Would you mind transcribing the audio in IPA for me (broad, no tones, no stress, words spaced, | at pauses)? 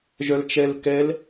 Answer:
ʒœlt͡ʃɛl kɛl